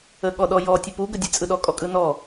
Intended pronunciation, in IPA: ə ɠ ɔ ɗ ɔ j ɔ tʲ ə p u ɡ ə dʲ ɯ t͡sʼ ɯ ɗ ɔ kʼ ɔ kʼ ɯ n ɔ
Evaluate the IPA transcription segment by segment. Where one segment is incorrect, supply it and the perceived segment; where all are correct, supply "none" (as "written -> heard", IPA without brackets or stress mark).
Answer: none